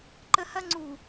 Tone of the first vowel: high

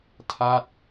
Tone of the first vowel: falling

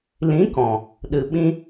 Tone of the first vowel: rising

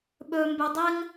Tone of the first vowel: high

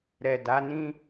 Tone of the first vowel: low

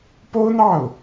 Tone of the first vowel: high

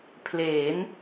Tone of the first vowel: rising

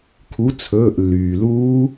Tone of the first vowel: rising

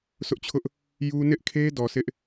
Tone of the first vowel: high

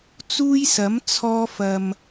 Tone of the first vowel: high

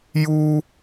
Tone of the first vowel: high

